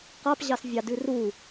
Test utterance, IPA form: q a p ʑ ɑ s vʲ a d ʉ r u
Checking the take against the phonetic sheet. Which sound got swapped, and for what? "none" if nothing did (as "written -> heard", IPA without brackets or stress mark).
none